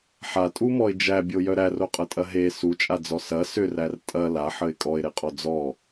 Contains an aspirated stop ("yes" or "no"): no